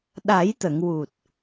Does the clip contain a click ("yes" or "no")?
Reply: no